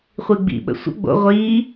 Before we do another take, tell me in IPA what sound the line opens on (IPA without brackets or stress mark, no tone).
χʷ